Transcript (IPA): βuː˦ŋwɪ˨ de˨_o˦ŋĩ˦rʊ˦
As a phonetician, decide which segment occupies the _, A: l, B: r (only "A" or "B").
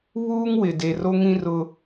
B